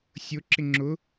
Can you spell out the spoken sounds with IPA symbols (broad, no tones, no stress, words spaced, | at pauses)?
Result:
sʲʊ ǁɪŋ͡ǁʊ